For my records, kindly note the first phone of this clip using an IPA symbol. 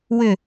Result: w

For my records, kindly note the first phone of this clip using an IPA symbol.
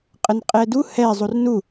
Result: qʼ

